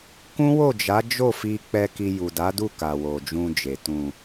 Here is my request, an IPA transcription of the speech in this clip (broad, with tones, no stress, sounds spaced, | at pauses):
k ũ˦ w o˦˨ d͡ʒ a˨˦ d͡ʒ o˦˨ f i˧ k͡p ɛ˧ k i˧ j u˨ d a˨˦ d u˦˨ k a˨ w o˨ d͡ʒ ũ˧ d͡ʒ e˨ t ũ˨